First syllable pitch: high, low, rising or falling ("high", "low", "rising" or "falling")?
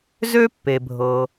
high